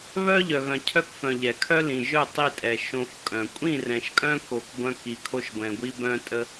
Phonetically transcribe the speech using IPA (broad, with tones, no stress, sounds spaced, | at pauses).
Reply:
β œ˦ ʎ œ˨ ɣ œ̃˨ cʰ œ˦ k f œ̃˨ ʎ ɛ˨ kʰ œ˦ l ĩ˨ ʒ œ˦˨ tˤ i˦˨ tʼ ɛ˨ ʃ õ˨ f kʼ œ̃˨ kʷʼ ĩ˦˨ r ɛ̃˨ ʃ kʼ œ̃˦ k o˨ k ɡʷ œ̃˦ k i˨ kʰ o˦ ʃ ɡʷ ɛ̃˨ ɡʷ i˦ b œ̃˦ tʼ ə˦